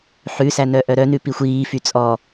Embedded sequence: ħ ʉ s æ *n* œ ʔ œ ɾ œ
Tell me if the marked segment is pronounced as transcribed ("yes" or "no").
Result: yes